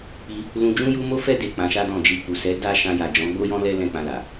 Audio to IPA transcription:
k͡p i˧ | l ũ˧ d͡ʒ ũ˦ j u˦ m o˦ f ɛ˦ d e˦˨ k͡p ã˧ ʃ a˦ d ɔ̃˦˨ d͡ʒ i˧ k͡p u˨ s ɛ˨˦ d a˦ ʃ ã˧ j a˨ d͡ʒ ɔ̃˨˦ ɡ͡b o˦ j ɔ̃˦ l ɛ˦ l ɛ̃˦˨ k͡p ã˧ l a˨

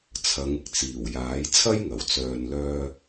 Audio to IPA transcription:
t͡sʰ ɐ˨˧ ŋ ɪ˥ k̚ t͡s iː˨˩ w j aː˨˥ j t͡sʰ ɐ˥ j ŋ ɐ˨˩ w t͡s œː˨ n l œː˧

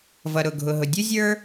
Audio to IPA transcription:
v ʌ˩ ɾ ʊ˩ ɡʱ ʊ˩ ɦ ʊ˩ dʲ u˥ zʲ ə˞˥

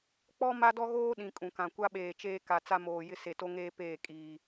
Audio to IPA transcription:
k͡p ɔ˦ m a˦ d ɔ˦ ɣ oː˦ ɗ ĩ˨ kʼ ũ˨ k ã˨ kʷ a˦ ɓ eː˨ t͡ʃ eː˦ k a˨ t͡s a˦ m oː˨ j ɪ˦ s e˨ t o˦ ŋ eː˦ p eː˦˨ kʼ iː˨

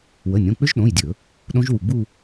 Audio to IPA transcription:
w ə˩˧˩ nʲ õ˩˧˩ k͡p ʏ˦˥ ʒ ɗ õ˩˧˩ j dʲ ɵ˧˩˧ | ɗ õ˦˥ ʒ w u˧˩ ɡ͡b u˥˧

